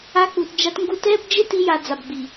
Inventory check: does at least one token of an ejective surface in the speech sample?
no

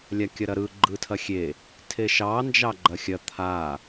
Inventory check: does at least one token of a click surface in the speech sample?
yes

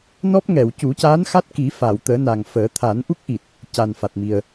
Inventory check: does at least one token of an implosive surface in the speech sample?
no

